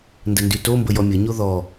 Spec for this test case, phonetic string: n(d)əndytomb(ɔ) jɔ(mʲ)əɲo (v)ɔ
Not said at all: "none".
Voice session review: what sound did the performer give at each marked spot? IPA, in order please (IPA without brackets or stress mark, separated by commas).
d, ə, mʲ, ð